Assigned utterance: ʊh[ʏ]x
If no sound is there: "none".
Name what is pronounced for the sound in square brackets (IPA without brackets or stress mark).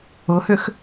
ʏ